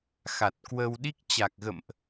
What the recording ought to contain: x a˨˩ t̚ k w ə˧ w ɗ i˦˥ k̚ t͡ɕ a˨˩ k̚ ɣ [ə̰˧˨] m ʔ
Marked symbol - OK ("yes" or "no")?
yes